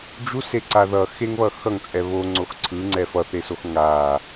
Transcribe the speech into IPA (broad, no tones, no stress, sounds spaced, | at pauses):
d͡ʒ u s e ǀ a ð ʌ x e ŋ β ʌ x ʌ ŋ t͡sʼ ɛ β o ŋ͡ǀ o x ǀʰ ɯ ŋ͡ǀ ɛ f ʌ θ e s o x ŋ a